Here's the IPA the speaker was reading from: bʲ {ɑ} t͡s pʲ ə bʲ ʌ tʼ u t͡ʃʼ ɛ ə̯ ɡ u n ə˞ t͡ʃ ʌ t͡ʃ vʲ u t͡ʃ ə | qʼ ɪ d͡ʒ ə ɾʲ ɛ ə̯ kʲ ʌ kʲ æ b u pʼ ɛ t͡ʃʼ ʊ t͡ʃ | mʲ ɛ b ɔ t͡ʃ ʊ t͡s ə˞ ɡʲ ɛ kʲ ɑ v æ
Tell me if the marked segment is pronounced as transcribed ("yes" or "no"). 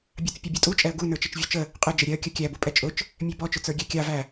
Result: yes